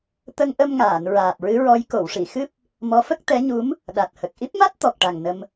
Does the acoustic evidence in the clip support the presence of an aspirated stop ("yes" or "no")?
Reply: no